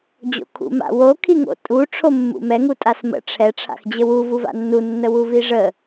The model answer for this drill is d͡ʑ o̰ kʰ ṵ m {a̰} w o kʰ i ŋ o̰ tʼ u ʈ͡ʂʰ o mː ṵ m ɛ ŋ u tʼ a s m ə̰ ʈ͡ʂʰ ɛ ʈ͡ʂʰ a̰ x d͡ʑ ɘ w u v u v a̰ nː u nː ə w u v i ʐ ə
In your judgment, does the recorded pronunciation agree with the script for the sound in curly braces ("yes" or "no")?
yes